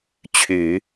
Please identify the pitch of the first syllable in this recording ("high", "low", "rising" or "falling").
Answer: low